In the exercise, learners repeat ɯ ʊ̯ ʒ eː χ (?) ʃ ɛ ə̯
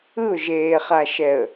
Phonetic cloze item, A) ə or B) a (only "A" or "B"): B